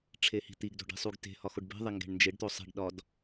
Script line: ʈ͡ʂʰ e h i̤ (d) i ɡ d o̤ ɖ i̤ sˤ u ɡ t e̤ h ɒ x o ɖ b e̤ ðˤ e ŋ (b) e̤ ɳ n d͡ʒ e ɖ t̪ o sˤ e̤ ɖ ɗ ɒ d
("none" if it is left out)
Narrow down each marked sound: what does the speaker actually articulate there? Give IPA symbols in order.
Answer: t̪, ɡ

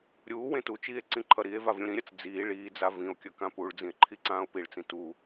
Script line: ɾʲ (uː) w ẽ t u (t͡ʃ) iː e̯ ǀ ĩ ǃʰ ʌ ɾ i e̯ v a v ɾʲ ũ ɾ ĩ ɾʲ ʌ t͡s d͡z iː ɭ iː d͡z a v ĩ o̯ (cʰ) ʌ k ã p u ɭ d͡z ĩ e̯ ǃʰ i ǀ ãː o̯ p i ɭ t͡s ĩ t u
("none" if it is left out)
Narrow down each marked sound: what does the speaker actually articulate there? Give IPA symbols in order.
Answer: uː, t͡ʃ, kʲ

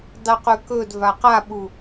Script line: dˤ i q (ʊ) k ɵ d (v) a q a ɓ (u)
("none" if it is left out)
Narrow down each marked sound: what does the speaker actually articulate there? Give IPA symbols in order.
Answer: ʉ, v, u

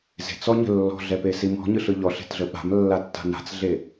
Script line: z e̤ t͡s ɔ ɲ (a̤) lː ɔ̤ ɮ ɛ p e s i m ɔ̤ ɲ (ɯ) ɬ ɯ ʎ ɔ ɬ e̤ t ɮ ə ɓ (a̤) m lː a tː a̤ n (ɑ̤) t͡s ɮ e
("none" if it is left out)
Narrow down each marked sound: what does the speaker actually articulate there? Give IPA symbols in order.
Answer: ə̤, ɯ, a̤, a̤

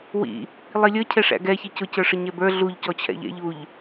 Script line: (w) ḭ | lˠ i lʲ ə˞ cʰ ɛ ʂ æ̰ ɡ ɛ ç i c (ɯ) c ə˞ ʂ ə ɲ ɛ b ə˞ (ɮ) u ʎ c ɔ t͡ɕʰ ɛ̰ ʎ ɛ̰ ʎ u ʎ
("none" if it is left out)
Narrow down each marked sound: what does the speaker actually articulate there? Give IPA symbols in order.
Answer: w, ʊ, ɮ

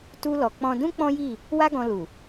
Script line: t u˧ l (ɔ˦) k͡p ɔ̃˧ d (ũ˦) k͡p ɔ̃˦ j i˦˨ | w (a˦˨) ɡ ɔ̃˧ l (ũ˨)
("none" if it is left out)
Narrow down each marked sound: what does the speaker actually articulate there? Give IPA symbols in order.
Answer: ɔ˨, ũ˦, a˦, u˨

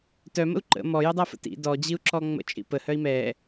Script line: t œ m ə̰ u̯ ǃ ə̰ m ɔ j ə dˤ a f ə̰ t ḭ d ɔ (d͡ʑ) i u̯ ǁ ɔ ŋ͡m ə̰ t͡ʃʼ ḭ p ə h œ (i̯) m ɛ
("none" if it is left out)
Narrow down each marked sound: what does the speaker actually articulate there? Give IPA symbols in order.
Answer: d͡ʑ, i̯

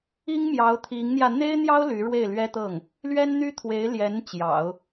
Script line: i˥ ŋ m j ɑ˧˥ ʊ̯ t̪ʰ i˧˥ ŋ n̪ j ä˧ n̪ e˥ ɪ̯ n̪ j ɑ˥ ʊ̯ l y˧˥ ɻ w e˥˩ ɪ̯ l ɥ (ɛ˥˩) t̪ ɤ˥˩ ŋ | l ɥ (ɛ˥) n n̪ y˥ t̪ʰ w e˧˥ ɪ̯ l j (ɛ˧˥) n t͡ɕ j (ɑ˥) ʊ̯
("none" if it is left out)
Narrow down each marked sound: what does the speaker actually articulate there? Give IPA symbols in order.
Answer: ɛ˥, ɛ˥, ɛ˧˥, ɑ̰˨˩˦

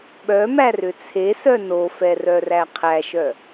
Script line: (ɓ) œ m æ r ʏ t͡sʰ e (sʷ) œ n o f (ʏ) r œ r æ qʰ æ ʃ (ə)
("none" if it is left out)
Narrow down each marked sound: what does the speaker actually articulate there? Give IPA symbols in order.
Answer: ɓ, s, ɛ, œ

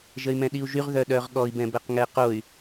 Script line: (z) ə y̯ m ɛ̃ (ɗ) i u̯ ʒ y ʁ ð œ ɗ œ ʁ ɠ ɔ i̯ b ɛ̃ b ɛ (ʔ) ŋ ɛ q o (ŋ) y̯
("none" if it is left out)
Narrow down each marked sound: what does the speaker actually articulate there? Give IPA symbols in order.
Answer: ʒ, ɗ, q, none

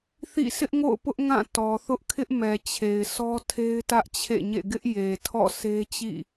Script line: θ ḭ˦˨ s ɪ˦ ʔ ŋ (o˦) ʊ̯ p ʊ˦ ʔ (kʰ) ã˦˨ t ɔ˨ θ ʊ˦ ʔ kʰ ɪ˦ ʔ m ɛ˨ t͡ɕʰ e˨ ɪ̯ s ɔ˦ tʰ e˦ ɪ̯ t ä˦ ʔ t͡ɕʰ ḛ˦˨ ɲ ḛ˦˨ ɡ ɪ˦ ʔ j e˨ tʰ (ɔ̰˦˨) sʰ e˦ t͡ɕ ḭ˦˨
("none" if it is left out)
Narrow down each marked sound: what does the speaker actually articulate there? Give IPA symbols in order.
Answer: o̰˦˨, ŋ, ɔ̰˦˨

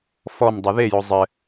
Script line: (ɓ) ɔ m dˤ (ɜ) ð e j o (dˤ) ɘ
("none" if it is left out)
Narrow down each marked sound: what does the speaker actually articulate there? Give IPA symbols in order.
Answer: f, ɛ, zˤ

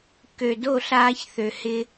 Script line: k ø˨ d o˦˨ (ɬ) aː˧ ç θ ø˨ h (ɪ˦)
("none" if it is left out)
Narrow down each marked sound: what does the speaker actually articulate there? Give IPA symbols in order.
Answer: ɬ, ɪ˧

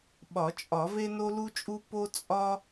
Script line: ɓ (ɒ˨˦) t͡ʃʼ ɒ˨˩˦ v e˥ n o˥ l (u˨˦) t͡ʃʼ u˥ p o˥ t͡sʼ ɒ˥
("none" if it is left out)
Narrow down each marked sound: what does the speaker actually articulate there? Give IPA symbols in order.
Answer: ɒ˨˩˦, u˥

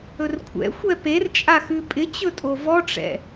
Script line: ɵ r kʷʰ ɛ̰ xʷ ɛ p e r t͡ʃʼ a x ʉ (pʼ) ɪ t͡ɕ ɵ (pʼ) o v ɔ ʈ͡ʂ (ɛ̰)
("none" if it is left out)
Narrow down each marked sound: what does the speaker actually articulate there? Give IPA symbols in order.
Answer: pʼ, tʼ, ɛ̰

